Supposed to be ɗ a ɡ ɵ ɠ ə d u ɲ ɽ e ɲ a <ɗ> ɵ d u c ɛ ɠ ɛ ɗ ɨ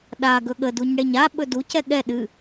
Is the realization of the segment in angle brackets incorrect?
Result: yes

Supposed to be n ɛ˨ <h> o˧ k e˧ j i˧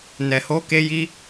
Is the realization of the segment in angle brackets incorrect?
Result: no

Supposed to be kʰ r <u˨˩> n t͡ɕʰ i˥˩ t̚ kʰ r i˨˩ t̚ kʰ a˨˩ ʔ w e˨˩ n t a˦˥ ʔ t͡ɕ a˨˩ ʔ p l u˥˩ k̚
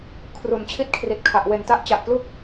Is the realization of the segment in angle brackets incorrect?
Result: no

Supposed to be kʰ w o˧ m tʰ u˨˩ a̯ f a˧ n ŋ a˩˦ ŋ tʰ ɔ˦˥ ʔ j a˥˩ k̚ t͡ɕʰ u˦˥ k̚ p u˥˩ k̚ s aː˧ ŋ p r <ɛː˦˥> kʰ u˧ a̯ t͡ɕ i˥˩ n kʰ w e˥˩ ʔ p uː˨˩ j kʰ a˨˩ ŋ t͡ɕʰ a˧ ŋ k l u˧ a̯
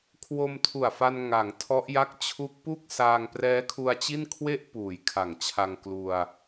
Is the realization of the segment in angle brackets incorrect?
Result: no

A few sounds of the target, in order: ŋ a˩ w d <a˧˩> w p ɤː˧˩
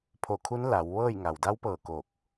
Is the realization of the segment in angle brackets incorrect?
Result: yes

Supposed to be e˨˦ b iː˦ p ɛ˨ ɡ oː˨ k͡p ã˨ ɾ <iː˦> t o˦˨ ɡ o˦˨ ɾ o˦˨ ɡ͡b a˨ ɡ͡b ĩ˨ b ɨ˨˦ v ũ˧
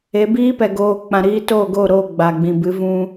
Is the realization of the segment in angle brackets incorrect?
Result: yes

